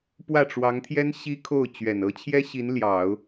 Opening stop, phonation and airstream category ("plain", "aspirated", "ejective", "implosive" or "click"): plain